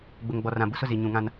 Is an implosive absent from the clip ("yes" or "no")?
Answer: yes